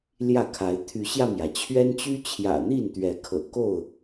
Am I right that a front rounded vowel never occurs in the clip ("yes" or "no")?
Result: no